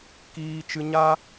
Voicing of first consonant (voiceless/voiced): voiceless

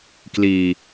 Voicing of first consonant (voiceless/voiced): voiceless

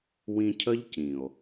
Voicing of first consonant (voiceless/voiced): voiced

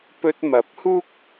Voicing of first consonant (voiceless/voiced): voiceless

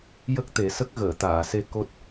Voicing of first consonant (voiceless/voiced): voiced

